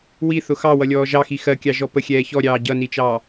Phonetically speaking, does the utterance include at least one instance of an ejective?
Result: no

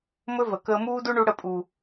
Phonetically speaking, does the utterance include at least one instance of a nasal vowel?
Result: no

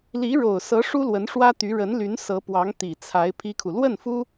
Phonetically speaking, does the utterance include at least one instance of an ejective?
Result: no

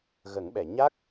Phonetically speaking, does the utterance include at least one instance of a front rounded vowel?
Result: no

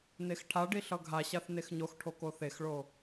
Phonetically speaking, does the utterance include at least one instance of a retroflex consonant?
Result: yes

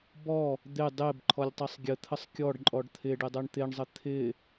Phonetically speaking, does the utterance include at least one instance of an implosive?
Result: no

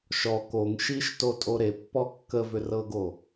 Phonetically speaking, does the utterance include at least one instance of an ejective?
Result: yes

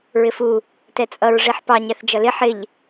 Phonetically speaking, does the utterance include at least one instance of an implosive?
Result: no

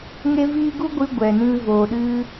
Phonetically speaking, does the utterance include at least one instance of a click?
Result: no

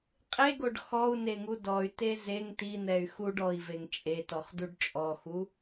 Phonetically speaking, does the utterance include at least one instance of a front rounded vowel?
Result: yes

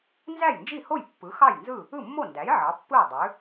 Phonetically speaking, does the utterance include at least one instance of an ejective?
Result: no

